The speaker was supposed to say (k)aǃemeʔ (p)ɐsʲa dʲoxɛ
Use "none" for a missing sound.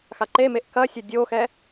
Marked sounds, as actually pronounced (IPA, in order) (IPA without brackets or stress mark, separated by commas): x, k